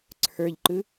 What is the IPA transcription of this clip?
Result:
ǀʰ ə˞ ʎ ǃ ɯ

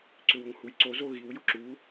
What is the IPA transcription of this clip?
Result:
ǀ ʏ w ʊ ŋ h u j ǀ o z o ɣ i w j ʊ ǁ u

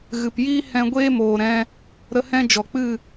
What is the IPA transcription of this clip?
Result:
ɣ ɨ˨ p j iː˦ h ɛ̃˧ ɡʷ eː˦ m oː˨ ɾ ɛ̃˧ | ɾ ə˧ h ɛ̃˦ d͡ʒ ɔ˨ k͡p ɨ˦˨

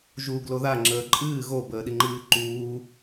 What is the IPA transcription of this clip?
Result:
ʒ u ɡ l o ð a ŋ͡ǁ əː ǃʼ ɨː ɣ o b əː ɗ i ŋ͡ǃ ɨː ǃ uː

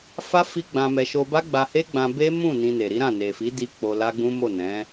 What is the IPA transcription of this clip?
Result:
f a˦ f i˦ ɡ͡b ã˧ m ɛ˧ ʃ o˧ b a˦ ɡ͡b a˧ h e˦ ɡ͡b ã˧ b e˦ m ũ˦˨ n ĩ˧ n e˨ ɾ i˨˦ ɾ ã˦˨ n e˨ f i˨˦ d i˧ k͡p o˧ l a˦ ɡ͡b ũ˦ m o˦˨ n ɛ̃˨˦

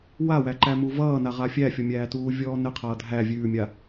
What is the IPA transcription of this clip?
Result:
w a w æ ǃ æ m u v ʌː n a ʁ a fʲ æ fʲ ɔ mʲ æː t uː vʲ ɔː n ɘ qʰ ʌː dʱ æ vʲ ʉː mʲ a

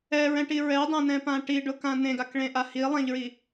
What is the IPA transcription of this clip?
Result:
ɛ ɹ ɛ̃ ʈ i ɹ ɛ dˤ ɛ̃ n ɛ̃ p ã ʈ i ɖ ʊ k ã n ẽ ɡ a k ɭ ẽ ʔ a h i lˠ ɛ̃ ʎ ɹ i

